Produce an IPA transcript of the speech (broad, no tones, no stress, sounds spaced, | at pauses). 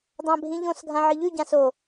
dˤ ã bʱ ĩ ʎ õ s ɡʱ ã ʕ ɨ ʎ ʉ ɟ ã s o